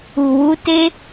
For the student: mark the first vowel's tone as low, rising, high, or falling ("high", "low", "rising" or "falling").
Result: low